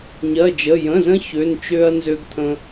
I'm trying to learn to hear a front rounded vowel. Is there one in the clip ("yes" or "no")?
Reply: yes